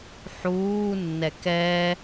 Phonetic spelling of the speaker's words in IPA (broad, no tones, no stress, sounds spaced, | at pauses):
ħ uː nː ɛ k ɛ